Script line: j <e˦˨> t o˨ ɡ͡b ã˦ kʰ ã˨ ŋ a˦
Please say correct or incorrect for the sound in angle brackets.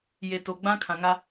incorrect: e˨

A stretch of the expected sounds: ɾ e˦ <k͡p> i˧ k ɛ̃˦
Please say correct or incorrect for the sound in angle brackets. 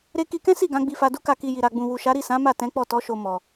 incorrect: k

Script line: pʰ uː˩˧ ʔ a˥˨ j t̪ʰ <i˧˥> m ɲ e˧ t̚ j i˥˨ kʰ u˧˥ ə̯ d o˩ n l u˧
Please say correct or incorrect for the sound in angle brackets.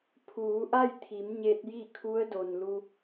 incorrect: i˩˧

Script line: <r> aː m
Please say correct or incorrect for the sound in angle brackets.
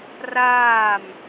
correct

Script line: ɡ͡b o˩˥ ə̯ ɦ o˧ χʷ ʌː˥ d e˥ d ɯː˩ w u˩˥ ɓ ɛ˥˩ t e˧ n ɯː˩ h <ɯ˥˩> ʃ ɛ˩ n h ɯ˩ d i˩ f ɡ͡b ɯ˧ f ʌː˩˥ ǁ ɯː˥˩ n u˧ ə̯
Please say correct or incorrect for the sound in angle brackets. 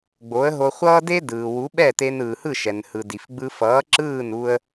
correct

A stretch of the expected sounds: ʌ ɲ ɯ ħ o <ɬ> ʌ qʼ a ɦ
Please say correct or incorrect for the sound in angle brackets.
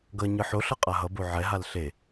correct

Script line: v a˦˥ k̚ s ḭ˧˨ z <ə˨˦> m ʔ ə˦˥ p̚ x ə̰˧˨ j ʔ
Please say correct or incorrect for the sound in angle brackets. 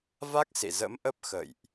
incorrect: ə̰˧˥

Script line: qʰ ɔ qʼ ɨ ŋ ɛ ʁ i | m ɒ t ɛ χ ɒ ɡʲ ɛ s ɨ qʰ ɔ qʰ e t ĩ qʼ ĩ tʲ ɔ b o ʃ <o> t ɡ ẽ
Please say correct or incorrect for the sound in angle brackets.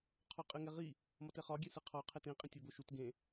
incorrect: u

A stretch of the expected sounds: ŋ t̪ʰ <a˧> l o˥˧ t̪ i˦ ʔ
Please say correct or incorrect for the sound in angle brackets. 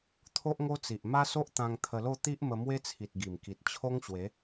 incorrect: ə˧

